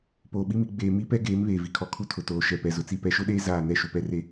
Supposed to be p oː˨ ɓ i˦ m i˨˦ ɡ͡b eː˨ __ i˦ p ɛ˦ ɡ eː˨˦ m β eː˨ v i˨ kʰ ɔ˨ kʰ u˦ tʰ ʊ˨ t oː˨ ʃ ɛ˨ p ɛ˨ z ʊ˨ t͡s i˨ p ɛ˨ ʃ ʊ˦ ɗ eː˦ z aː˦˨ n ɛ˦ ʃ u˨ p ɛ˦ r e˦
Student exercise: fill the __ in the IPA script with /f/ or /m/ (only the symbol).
m